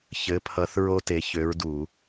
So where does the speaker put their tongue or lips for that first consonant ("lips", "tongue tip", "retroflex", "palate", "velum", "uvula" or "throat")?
palate